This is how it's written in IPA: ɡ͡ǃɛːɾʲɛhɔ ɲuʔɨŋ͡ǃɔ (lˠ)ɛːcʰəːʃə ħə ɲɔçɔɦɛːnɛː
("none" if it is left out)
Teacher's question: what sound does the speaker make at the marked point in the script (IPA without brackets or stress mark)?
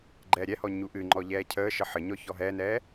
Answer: ʎ